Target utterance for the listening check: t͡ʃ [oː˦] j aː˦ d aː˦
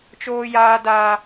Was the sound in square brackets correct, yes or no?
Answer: yes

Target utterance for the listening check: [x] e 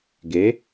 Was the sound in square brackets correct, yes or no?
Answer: no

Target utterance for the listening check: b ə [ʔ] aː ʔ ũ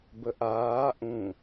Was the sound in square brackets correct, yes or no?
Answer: yes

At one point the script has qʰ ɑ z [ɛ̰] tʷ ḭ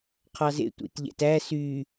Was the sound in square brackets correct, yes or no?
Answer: no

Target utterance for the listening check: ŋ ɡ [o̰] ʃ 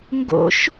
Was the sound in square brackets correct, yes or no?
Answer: yes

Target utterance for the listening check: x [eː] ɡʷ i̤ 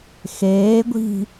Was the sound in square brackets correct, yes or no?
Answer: yes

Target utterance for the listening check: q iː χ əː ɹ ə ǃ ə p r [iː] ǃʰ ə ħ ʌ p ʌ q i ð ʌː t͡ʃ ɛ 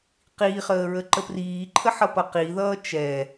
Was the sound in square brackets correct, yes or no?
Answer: yes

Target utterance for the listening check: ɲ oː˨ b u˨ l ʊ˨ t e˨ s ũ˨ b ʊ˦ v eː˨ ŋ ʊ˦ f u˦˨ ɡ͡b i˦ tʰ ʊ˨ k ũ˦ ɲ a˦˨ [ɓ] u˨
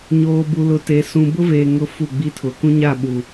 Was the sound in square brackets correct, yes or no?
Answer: yes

